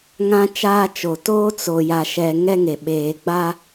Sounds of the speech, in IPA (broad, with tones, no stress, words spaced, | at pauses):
ŋã˦t͡ʃaː˦t͡ʃo˨ toː˦t͡so˨ ja˨ʃɛ˨ ŋɛ˦ŋe˨ ɓeː˨ɡ͡ba˦